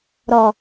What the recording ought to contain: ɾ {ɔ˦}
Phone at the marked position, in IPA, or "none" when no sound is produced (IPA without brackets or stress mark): ɔ˨